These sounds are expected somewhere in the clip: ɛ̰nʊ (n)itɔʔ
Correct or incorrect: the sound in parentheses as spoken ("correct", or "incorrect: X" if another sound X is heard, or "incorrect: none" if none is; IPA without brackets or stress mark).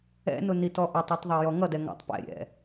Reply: correct